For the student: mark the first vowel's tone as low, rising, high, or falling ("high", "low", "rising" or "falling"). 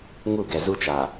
falling